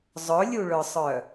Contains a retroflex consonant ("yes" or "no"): yes